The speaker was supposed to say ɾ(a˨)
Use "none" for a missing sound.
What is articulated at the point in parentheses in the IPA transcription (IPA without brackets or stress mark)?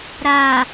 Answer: a˨